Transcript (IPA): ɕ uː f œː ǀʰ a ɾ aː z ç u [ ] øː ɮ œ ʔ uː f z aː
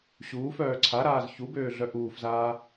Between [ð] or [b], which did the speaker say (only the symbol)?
b